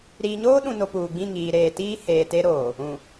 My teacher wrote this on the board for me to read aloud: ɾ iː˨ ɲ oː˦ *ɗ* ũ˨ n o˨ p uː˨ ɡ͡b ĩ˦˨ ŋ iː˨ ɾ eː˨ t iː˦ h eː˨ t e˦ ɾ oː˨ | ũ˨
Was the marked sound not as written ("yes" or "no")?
no